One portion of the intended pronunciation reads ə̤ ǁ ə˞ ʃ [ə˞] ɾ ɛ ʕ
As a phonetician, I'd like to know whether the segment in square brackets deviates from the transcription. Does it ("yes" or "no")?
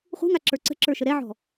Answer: yes